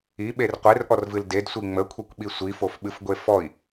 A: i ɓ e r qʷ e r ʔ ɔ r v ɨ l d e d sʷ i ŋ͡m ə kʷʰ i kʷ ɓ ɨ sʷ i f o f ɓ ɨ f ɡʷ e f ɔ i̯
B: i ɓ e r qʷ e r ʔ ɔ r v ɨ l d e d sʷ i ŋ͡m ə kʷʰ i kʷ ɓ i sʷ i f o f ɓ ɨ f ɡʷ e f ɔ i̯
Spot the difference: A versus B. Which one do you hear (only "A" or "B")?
B